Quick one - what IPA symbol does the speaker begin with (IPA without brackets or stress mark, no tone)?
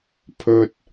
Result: pʰ